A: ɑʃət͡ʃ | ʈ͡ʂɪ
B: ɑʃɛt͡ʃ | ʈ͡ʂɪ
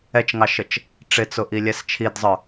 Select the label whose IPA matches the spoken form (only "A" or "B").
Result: A